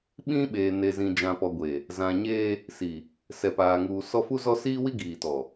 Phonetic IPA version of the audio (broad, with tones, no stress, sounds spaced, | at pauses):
ɓ ĩ˦ ɓ eː˨ n e˨ z ĩ˨ d͡ʒ ã˨ p ɔ˨ ɡʷ e˨ | z ã˨ ɲ eː˦ | s i˨ | s ɛ˨ p aː˨ ŋ uː˨ s ɔ˦ f u˦ z ɔ˦ s iː˦ w i˦ ɡ iː˨ t ɔ˨